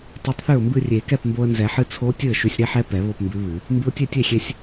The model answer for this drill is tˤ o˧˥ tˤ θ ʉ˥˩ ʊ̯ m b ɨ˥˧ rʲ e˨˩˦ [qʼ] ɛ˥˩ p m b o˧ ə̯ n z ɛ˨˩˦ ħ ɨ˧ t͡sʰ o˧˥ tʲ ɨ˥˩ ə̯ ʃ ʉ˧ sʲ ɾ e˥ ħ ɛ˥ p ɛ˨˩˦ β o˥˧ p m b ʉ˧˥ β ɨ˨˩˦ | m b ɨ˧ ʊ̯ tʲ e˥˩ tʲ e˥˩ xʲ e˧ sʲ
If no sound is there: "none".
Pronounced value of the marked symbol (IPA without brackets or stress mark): k